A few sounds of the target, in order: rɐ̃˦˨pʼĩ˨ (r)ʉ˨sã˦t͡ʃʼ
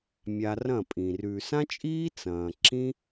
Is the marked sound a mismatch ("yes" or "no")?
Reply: no